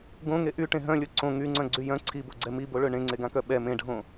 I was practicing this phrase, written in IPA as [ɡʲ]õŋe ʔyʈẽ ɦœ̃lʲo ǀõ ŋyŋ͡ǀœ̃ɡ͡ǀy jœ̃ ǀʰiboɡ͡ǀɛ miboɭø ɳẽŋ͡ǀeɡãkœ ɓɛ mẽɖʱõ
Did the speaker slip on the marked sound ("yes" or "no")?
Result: yes